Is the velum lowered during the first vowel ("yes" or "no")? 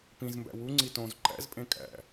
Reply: yes